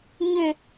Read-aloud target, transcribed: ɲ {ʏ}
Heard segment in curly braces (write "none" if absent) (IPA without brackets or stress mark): ʏ